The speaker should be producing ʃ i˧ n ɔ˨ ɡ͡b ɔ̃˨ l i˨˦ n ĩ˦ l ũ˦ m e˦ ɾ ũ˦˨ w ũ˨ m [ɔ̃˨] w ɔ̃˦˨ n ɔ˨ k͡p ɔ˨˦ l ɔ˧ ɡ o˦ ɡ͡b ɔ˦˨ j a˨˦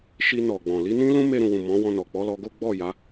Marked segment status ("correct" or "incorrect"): incorrect